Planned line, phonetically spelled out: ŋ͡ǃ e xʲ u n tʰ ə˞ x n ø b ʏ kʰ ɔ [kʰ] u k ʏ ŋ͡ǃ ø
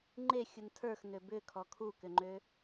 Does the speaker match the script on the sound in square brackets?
yes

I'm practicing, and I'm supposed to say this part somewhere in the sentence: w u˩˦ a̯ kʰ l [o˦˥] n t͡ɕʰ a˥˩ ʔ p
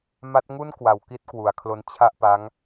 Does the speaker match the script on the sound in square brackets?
yes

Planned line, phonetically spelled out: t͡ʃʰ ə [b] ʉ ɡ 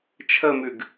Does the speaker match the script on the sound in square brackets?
no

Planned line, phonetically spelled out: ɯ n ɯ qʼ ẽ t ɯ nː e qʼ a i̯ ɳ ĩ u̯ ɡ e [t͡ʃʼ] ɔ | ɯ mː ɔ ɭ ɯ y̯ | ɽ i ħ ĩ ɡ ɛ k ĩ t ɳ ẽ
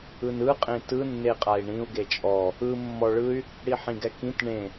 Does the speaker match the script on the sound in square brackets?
yes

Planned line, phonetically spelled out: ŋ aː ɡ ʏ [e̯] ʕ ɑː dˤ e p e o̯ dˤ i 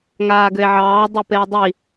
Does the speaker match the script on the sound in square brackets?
yes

